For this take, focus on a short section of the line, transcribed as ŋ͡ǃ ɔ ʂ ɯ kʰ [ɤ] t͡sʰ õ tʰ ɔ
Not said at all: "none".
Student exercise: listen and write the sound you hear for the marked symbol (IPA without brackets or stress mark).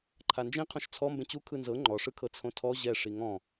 ɤ